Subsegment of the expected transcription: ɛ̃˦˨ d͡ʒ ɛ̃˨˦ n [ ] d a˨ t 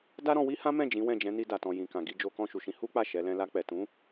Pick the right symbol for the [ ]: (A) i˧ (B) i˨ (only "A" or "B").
A